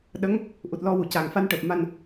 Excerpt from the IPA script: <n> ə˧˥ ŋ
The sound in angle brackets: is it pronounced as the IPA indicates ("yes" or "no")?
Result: no